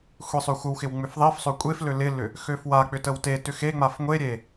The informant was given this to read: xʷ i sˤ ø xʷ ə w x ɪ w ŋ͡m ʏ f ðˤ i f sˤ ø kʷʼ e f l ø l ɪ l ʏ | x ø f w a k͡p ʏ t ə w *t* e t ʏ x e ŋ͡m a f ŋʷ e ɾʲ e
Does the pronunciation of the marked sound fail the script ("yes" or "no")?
no